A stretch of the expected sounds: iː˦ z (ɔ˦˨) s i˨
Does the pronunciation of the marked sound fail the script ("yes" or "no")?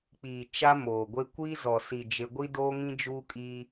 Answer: yes